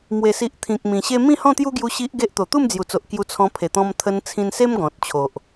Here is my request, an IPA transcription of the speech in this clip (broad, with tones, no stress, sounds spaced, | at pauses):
m w e˨˩ s i˨ ʔ t̪ʰ ĩ˨ k̚ m ĩ˨˩ ɕ e˦ m ĩ˥˧ h ɔ̃˥˧ t̪ j u˦ ɡ j u˧ ɕ i˦ ʔ ɡ e˦ ʔ t̪ o˨˩ t̪ u˥˧ m d͡z j u˨˩ t͡s o˨ ʔ k j u˧ t͡sʰ ɔ̃˧ pʰ e˨˩ t̪ ɔ̃˧ m t̪ʰ ə˧ n t͡sʰ ĩ˧ n s e˦ m ɡ ɔ̃˨ t̚ t͡ɕʰ o˨ ʔ